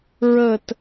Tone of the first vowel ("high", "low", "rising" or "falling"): low